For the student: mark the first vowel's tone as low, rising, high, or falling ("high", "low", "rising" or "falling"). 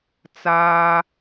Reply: high